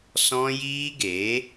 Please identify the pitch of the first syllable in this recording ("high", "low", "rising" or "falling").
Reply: high